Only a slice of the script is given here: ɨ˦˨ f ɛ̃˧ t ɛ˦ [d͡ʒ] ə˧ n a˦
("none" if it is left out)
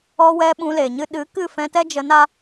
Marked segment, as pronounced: d͡ʒ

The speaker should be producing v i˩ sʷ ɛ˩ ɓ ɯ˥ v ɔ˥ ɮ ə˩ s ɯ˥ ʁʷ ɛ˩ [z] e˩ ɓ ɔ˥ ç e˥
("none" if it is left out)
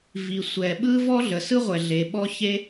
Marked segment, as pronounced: ɮ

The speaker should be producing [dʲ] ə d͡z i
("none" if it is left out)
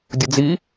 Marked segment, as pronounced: dʲ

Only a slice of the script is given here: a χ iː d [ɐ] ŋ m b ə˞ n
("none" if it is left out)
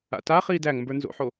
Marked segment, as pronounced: æ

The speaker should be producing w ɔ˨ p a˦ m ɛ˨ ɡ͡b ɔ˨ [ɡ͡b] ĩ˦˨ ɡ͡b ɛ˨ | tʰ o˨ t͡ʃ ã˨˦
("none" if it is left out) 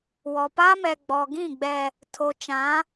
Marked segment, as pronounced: ɡ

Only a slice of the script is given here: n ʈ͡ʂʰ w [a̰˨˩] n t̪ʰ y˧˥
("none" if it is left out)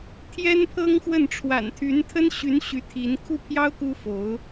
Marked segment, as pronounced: a̰˨˩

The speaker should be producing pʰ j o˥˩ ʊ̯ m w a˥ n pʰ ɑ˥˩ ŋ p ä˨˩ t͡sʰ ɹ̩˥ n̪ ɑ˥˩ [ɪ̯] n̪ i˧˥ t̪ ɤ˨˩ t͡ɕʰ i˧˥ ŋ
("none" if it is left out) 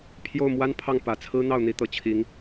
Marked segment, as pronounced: ʊ̯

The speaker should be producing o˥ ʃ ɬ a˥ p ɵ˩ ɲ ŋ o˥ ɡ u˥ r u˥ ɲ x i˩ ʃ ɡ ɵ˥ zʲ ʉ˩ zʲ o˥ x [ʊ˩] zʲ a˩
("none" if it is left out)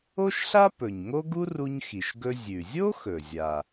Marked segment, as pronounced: ɵ˩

